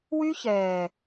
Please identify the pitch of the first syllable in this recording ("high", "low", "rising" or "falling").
high